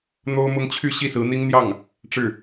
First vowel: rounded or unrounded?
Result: rounded